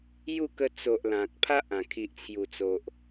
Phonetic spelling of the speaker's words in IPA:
ju˥˧kə˧ t͡so˨ʔ lã˨k̚pʰa˦ʔã˨˩ kʰi˨ʔt͡sʰju˨˩t͡so˨ʔ

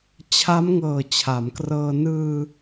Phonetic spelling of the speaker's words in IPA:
t͡ɕʰa˦˥mŋɤː˨˩ t͡ɕʰa˩˦mkrɤː˧ nɯː˧

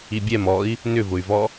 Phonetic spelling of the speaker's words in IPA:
ibʲɛm ɔi̯ | nʏvʊy̯vɔ

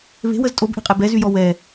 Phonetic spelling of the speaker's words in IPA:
βe̤wəz tʼobʔe̤qʼɛ bɛzyjɔ wɛ

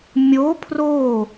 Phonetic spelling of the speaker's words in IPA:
mʲo pʰro

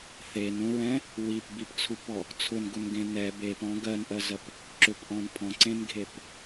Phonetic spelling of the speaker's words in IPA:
θenũɹɛ̃ | wipbipt͡sʰupɔ | t͡sʰʊnɡʊnɡẽ nɛ bepɔ̃ ɡɜnʔɜzɜp | ǁʏpʔɔ̃n pʰɔ̃ǀẽnɡʱep

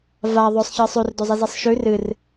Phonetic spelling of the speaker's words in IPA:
va ðˤɵsˤ çɨsˤʉr dozˤizisˤʃʉ rɨr

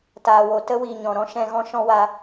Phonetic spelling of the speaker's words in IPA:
taː˨wo˨ tə˦wiː˨ ɲɔ̃˨ ɾɔ̃˦ʃɛ̃˧ɣɔ̃˦ ʃɔ̃˦wa˧

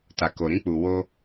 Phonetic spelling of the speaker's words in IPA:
ta˨ko˨ɾĩ˧k͡pu˨ wo˧

